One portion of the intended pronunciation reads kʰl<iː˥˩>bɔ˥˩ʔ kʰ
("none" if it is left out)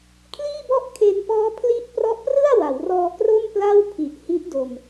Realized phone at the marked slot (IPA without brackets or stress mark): iː˥˩